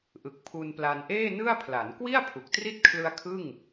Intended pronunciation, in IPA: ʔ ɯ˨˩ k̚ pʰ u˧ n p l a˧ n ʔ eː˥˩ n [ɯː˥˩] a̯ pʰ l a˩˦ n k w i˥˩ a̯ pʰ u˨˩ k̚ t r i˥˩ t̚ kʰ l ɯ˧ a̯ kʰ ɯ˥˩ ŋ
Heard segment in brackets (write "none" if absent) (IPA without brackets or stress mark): ɯ˥˩